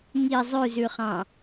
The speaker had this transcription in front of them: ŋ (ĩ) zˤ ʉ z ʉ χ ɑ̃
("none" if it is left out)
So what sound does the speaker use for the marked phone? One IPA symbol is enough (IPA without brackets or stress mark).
i